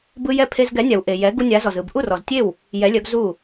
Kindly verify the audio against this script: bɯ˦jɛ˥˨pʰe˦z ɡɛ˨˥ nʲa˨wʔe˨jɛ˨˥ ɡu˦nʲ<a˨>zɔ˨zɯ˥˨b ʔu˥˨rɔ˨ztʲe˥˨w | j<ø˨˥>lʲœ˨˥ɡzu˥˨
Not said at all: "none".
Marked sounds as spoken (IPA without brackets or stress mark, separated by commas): a˨˥, ɛ˨˥